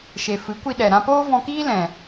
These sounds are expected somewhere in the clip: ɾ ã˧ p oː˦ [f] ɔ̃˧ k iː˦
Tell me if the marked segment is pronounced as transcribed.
no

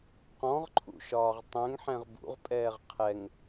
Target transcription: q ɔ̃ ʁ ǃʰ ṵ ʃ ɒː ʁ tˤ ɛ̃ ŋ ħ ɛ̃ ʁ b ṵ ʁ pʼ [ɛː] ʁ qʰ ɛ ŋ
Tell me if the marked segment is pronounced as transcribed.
yes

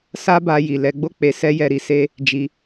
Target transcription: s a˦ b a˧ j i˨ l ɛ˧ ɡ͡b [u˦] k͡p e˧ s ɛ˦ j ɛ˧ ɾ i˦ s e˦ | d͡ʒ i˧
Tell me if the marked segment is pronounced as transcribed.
no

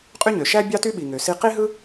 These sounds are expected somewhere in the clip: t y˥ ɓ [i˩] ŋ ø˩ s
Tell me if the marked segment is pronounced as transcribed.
yes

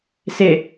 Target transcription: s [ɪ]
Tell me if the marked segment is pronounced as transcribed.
yes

